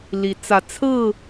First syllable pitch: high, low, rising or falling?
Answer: rising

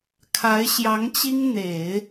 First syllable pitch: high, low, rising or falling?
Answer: rising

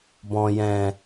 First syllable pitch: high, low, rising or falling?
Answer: low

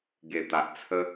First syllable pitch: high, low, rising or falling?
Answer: low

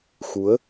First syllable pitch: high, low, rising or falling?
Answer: rising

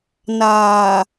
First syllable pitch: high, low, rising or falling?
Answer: low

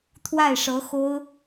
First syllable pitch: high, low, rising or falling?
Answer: falling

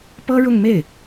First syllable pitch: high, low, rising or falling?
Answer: high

